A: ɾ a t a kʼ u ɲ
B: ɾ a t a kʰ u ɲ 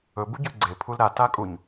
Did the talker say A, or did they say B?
A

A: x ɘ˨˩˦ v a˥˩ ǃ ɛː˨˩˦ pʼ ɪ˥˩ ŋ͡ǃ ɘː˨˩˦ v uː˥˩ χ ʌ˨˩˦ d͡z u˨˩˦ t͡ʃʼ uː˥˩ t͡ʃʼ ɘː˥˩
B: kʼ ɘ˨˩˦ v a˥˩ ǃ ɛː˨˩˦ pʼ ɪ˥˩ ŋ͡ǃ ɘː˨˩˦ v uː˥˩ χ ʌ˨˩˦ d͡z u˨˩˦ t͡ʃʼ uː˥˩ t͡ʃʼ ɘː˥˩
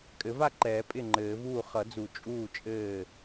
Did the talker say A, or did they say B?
B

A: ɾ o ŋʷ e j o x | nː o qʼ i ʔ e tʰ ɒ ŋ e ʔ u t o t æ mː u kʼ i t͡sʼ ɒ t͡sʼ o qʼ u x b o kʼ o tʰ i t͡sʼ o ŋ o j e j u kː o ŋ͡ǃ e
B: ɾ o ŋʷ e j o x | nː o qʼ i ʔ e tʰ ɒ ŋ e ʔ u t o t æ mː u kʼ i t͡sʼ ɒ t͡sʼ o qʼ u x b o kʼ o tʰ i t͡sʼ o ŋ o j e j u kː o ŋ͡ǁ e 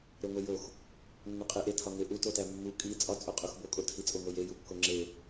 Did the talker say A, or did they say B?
B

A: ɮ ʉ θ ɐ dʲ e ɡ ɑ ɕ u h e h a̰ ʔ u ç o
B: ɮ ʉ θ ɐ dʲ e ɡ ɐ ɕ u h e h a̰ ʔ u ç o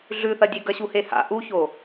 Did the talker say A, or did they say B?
B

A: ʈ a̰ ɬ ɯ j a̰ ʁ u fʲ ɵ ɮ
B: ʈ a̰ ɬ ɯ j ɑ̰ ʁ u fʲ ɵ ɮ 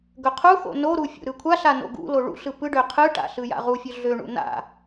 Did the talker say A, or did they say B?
A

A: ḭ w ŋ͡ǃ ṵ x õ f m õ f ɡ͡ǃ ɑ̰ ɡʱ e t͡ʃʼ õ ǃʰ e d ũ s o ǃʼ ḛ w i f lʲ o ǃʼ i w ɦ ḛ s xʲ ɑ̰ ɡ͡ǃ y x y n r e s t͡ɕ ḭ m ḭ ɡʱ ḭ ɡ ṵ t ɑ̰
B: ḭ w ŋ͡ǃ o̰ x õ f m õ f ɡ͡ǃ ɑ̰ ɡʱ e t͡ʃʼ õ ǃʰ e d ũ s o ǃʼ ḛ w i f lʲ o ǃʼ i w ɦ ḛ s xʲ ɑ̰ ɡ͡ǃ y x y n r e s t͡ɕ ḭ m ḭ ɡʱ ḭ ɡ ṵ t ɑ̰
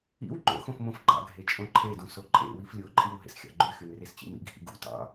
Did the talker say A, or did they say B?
B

